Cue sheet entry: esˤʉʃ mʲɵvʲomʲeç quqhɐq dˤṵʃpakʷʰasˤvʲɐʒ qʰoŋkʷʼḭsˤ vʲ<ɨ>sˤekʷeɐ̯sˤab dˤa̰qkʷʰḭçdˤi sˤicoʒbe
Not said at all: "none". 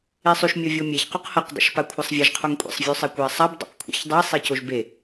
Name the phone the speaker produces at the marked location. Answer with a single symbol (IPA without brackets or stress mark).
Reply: ʉ